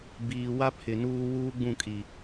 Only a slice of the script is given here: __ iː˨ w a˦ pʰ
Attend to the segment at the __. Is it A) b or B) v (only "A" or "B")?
A